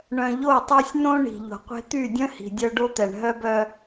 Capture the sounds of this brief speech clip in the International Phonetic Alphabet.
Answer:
ɳœ̃˨ʎo˦˨tˤy˦sʲ nõ˦ ɳi̤˨ʎo̤˨qʷe̤˦ t̪y˦˨dʲœ̃˦ hi̤˨dʲœ˦ ɖo˦t̪ɛ˨ɳ ɦœ˦bœ˦

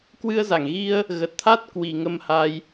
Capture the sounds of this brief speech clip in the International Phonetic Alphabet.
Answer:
kwɨ˧ə̯za˧˩ŋ ɣi˧ə̯ | ɣə˨˩t̚t̪ʰa˦˥t̚ kwi˨˩ ŋə˧mha˧j

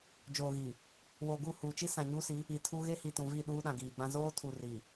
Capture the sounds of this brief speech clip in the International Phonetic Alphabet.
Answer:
d͡ʒoː˨ɣi˨ | woː˨ɡu˦˨huː˨ t͡ʃi˦sã˨ɲu˦si˨˦ | i˨tʰu˦ ɣe˦hi˨tũ˨vi˦˨ ɗuː˦ɗã˨ɡiː˨ɡ͡bã˦ zoː˦tʰu˨ ri˨

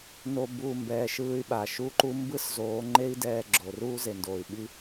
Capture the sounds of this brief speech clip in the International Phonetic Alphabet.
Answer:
no˦buː˧mbɛː˧ ʃɯː˧y̯ɓa˨ʃu˦ǃu˦ mbɯ˦szoː˨˦ŋ͡ǃe˦i̯ dɛː˧ɡ͡ǁo˨ ruː˦ze˨ndoː˨y̯ ɓi˦

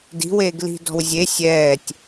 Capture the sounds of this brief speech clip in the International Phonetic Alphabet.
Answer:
di̤weːɡ li̤dɔ̤w zʲe sʲɛːtʲ

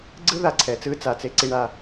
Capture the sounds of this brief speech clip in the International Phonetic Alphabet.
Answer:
ɡ͡ǀɯ˦ ða˨ǀʰɛ˨t͡sɯ˦ t͡sa˨t͡se˦ǀi˦ɳa˦

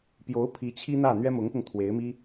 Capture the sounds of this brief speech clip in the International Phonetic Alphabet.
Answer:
pjo˧˥ʊ̯ pʰi˧˥t͡ɕʰi˥n̪ä˥˩ n̪ɥɛ˥mʊ˧˥ŋpʊ˧ŋ t̪ʰwe˧˥ɪ̯mi˥

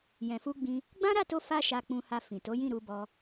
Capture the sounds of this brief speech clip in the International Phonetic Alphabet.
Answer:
jɛ̃˨fu˧ɡ͡bĩ˧ | ɡ͡bã˦ɾa˦˨to˧ fa˦ʃa˧k͡pũ˧ha˧ fĩ˨to˨˦jĩ˦˨ ɾu˧bɔ˧

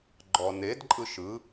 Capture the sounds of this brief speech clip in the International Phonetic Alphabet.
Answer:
ɡ͡ǃɔned ǃʼɯʃɯ

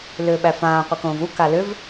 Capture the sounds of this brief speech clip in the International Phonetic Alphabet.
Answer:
lʏːɓæfãː qʷikõːvu kalʏv

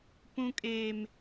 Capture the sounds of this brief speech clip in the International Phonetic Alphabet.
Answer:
pũ˦kʼeː˦m

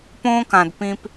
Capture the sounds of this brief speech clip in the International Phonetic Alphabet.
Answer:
põː˧kã˨d pĩ˧p

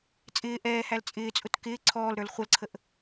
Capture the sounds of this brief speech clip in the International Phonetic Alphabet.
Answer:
t͡sʼɪː ʔɛːhæl t͡sʼɪːt͡sʼʊt kɪː ǀʰɔːlɾə˞l χʷʌlǀʰəʔ

